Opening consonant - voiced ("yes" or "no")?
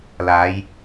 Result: yes